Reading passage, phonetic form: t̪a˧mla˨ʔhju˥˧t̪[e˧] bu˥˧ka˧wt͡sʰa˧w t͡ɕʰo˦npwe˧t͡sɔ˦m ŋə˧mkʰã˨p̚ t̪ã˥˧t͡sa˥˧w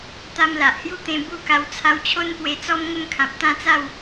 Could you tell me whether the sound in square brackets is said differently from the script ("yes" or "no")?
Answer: yes